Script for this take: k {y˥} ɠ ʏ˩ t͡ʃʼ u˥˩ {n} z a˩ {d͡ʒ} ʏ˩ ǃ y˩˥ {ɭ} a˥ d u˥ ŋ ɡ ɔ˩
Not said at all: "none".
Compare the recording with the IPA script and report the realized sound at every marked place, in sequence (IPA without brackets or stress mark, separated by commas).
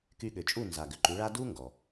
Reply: y˧, n, ɡ, ɭ